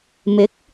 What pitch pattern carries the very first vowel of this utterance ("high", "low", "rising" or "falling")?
rising